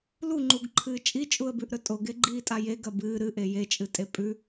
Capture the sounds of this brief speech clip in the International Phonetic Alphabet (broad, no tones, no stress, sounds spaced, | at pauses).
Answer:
l u ŋ͡ǃ u ɡ ǃʰ ɨː t͡ʃʼ i t͡ʃʼ u ə̯ b ʉ ʔ ɾ ɵ tʼ o ɡ e ɡ͡ǃ iː tʼ a j e ɡ ɐ b ɨː ɾ ɨ ʔ e j e t͡ʃʼ ɨ tʼ e pʼ ʉ